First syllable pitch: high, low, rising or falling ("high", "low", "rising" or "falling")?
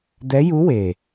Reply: rising